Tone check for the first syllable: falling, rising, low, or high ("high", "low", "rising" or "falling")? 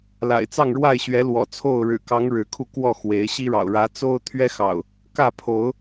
low